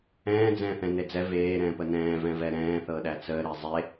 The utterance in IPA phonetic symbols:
ɛ̃ː d͡z ɛ̃ː θ ɛ̃ n e d͡z ɛ v eː ɾ ɛ̃ː p ə n ɛ̃ː v ɛ̃ v ɛ ɾ ɛ̃ː θ ɤ ɗ æ t͡s əː ɾ e zˤ e

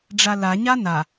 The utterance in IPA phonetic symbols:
ɖ͡ʐ a l a ɲ a n a

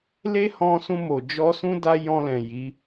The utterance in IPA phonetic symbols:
l e˦ h ɔ̃˧ s ũ˧ m o˨ d͡ʒ ɔ˧ s ũ˦ d a˦ j ɔ̃˧ l ɛ̃˨ j i˨˦

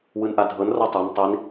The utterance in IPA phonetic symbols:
w ɯ n ʔ a dʱ ɤ n r ɤ tˤ ɛ n tˤ i n

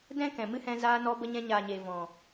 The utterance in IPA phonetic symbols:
d ɛ̃˦ k ɛ̃˨ m ɨ˦ h ɛ̃˧ z aː˧ n ɔ˧ b ə˧ ɲ ɛ̃˧ ɲ aː˨ ɲ e˨ v ɔ̃˨

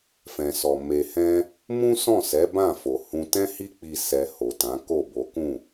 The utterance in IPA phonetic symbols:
f ɛ̃˨ s ɔ˨ m e˨ h ɛ̃˧ | m ũ˦ s ɔ̃˦˨ s ɛ˨˦ b ã˦˨ f o˨ h ũ˧ t ɛ̃˦ h i˦ k͡p i˧ s ɛ˧ h o˨ t ã˨˦ k o˦˨ b o˨˦ k ũ˦˨

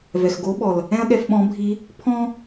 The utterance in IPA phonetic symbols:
v ɛ˩ x ɡ o˧˥ ɓ ɔ˩ l | ɛ̃˥ ɐ̯ ɠ ɛ˧ f ɓ ɔ̃˧˥ bʱ i˧˥ | pʰ ɔ̃˥

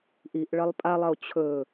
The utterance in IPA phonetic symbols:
ʔ i ʔ ɭ ɐ lˠ pʼ a lˠ ɐ o̯ t͡ɕʰ ɵ

